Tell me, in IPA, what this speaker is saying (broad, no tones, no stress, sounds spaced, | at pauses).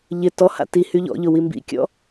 ʎ ɪ t ɔ h a̰ t i h y ʎ ɔ̰ ʎ ʊ w i m b ḭ kʲ ɔ̰